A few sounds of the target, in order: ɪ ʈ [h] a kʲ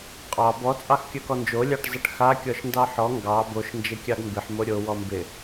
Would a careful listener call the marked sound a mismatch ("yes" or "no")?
yes